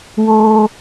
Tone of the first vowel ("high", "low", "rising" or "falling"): low